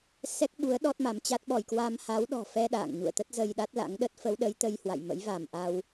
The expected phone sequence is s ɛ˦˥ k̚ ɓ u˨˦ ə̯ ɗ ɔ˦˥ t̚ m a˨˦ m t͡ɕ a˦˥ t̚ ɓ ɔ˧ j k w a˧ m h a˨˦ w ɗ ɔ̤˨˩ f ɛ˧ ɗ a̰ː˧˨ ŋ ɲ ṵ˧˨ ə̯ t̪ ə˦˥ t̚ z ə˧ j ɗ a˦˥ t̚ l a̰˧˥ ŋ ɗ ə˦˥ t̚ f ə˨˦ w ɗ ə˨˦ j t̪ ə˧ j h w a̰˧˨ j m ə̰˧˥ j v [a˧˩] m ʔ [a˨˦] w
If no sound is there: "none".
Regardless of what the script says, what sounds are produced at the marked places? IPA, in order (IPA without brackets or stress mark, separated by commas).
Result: a˧˩, a˧